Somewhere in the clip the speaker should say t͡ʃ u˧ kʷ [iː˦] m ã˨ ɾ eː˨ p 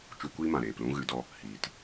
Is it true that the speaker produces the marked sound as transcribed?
yes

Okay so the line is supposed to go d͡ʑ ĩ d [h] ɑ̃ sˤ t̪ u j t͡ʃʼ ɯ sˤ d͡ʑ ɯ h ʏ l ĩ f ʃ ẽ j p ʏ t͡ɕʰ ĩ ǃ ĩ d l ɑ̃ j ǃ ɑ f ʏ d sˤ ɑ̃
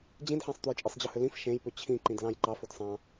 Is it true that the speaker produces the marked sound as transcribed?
no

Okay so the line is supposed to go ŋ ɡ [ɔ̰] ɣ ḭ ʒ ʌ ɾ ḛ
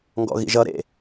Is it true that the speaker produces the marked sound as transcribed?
yes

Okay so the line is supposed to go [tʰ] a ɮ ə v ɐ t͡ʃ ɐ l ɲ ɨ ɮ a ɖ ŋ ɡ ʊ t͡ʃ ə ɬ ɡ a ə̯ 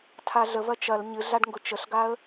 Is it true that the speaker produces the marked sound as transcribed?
yes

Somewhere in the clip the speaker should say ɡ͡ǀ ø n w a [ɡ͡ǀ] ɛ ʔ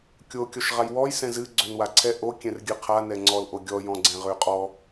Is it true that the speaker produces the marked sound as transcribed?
no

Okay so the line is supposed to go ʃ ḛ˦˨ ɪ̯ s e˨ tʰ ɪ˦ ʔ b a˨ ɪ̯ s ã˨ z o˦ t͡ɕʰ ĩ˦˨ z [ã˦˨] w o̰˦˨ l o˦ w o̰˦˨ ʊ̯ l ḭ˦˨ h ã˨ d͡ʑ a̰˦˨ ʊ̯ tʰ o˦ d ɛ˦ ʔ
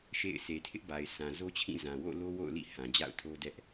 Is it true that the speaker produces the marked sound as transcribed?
no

